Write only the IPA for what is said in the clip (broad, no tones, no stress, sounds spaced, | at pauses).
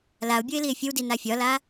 l a o̯ bʲ o e̯ l i e̯ fʲ ə w d i n a fʲ ɒ l a